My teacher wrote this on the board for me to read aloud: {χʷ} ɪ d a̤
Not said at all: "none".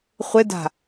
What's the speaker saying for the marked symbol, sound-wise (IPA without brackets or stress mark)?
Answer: χʷ